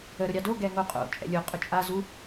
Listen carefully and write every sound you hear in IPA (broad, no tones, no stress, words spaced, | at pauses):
ə ɾʊɾʲɑdo ɡɛŋoqʼo̰ t͡ʃʼɛ̰lʲo qʼʊt͡ʃʼa zu